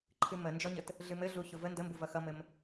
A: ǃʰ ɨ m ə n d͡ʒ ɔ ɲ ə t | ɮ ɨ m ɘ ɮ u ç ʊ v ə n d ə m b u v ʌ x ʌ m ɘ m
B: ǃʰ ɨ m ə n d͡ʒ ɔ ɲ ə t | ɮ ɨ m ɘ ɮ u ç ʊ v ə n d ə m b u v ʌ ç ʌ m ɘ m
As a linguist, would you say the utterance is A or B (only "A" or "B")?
A